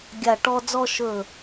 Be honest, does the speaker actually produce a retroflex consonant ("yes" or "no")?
yes